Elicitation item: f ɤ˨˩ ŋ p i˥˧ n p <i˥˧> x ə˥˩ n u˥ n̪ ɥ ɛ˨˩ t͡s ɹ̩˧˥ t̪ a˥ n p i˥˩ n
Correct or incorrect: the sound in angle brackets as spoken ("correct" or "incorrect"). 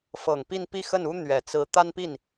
correct